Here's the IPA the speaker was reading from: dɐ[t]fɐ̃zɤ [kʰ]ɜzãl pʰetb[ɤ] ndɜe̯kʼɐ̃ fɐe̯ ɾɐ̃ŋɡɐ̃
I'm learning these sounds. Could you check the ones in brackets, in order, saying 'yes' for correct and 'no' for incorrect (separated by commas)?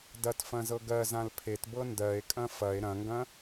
yes, no, yes